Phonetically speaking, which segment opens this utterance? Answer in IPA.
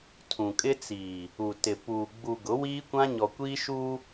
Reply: tʰ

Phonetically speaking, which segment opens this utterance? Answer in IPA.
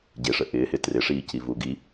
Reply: ɟ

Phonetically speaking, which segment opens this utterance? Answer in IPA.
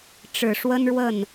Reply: ʈ͡ʂ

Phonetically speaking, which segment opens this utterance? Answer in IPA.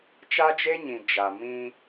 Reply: t͡ʃ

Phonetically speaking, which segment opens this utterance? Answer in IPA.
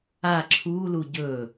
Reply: a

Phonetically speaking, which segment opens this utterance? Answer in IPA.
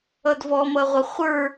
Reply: ʌ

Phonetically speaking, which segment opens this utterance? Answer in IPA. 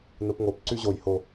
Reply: n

